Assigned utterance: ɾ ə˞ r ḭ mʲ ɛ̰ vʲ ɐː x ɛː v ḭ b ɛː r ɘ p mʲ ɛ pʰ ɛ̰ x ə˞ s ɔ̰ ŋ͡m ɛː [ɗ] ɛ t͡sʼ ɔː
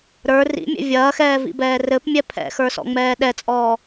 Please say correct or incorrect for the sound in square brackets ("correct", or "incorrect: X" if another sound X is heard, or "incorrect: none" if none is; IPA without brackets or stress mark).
correct